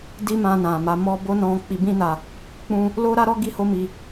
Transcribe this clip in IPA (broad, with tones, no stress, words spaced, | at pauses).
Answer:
di˦mã˧ nã˨ma˨˦mɔ˦ bo˦nɔ̃˧ k͡pi˧bĩ˦na˧ | k͡pũ˦ | lo˦ɾa˦ɾɔ˦ ɡi˦ho˦mi˧